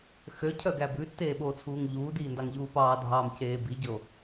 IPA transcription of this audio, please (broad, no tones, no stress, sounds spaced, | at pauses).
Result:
x ø cʰ œ ɡ æ b ʉ tː eː ɓ oː t͡sʰ uː ŋ ʎ uː d iː n d ɑ ŋ ʎ uː p ɑː dʱ ɑː m c eː b i ɟ ɵ o̯